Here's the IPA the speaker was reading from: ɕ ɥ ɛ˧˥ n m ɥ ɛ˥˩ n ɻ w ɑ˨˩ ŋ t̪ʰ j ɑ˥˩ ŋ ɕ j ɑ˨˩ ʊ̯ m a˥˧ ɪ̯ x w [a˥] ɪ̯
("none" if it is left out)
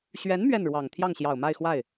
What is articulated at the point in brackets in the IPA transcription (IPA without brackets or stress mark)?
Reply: a˥˩